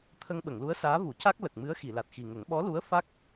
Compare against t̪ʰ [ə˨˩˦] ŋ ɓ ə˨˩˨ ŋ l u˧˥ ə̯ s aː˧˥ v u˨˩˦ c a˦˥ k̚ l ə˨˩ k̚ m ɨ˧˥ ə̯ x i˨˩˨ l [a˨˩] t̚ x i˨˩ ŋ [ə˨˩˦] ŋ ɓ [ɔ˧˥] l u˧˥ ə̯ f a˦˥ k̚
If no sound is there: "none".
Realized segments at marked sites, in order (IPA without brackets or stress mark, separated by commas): ə˧, a˨˩, ə˨˩˦, ɔ˧˥